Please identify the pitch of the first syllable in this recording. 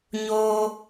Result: high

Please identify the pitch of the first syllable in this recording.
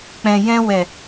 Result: low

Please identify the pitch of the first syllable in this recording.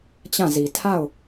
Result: falling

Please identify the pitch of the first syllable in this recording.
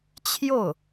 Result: falling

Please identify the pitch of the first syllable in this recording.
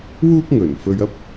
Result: high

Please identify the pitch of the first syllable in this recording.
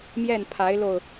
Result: falling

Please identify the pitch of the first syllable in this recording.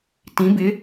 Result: rising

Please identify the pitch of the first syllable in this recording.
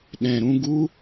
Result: low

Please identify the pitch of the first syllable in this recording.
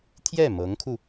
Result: falling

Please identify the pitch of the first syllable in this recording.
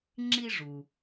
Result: high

